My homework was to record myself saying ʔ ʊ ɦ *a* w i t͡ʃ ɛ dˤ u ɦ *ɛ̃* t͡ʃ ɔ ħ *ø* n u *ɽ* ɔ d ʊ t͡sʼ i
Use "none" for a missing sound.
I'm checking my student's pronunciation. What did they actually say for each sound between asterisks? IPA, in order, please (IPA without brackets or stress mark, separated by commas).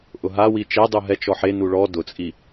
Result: a, ɛ, e, ɭ